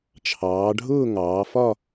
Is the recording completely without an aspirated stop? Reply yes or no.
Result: no